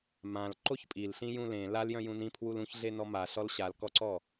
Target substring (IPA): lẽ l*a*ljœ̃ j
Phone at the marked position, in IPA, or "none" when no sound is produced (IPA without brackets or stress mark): a